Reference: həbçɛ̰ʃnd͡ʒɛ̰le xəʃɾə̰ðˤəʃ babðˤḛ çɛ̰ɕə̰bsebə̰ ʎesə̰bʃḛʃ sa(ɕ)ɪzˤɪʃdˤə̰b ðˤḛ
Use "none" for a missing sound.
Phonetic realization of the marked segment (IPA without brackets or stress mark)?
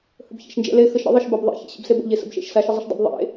ʃ